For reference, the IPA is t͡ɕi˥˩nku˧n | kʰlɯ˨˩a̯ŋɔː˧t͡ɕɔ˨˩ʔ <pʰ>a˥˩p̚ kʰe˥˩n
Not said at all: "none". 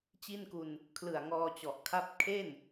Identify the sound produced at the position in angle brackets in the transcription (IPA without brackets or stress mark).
kʰ